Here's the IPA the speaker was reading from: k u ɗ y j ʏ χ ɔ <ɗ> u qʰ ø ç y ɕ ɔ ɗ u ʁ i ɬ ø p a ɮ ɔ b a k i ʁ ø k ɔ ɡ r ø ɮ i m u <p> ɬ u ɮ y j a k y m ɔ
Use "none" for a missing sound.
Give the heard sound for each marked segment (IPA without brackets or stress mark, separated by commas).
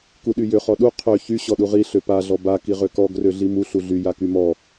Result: ɗ, none